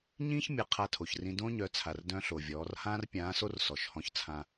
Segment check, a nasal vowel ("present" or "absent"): present